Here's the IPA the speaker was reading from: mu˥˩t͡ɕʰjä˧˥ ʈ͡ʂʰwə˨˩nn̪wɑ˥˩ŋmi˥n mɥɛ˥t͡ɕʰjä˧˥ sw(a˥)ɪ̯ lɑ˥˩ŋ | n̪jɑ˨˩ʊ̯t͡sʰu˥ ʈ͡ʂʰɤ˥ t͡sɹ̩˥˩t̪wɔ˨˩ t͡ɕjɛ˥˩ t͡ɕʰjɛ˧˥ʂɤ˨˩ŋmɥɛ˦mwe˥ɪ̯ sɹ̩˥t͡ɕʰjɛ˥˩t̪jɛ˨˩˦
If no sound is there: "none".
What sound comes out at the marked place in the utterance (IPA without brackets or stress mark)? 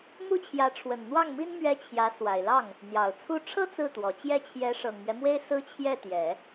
a˨˩